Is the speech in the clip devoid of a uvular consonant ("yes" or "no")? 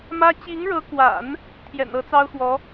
yes